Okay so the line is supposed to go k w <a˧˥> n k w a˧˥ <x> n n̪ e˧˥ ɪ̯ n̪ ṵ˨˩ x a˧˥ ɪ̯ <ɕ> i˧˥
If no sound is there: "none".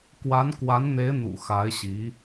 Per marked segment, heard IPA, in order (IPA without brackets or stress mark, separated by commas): a˧˥, none, ɕ